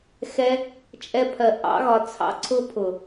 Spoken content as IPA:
x ɛ˧ | t͡ʃʼ ɛ˧ pʰ ɜ˨ ʔ ɑ̰˧ ɣ ɒ˨ t͡sʰ ɑ̰˧ ǀʰ ʊ˧ pʰ ʊ˨

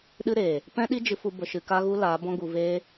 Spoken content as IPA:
ɗ ɨ˦ ɾ eː˨ | p ɛ̃˦ ɗ i˦ d͡ʒ ɨ˧ f u˧ b ə˧ ʃ ɨ˧ k a˦ ɣ u˦ l aː˨˦ b ɔ̃˦ ɡ u˧ v eː˦

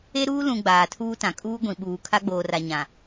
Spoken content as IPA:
e˦ ɾ uː˦ l ũ˨ ɡ͡b aː˨ tʰ uː˦ t ã˨ kʼ uː˦ ɡʷ ĩ˨ ɓ uː˨ kʰ a˦ ɡ͡b oː˨ r a˨ ɲ ã˨

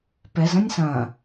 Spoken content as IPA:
p ɛ z ɐ̃ nʲ s ɐ̃

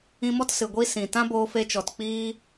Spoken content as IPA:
ĩ˧ m ɔ˦ t s ɨ˨ ɡʷ i˦ s ĩ˨ t ã˦ b oː˧ f e˧ t͡ʃ ɔ˨ t k͡p iː˦

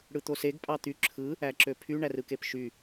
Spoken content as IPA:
ɽ ɯ t̪ o s e ɡ pʼ ɑ t̪ y ǁʰ ɯ | æ ǁ ø pʰ y ɳ æ r ɯ k e p ʃ y

